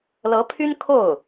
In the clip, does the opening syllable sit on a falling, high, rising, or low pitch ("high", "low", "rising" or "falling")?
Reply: rising